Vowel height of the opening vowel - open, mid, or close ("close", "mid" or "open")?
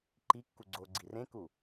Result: close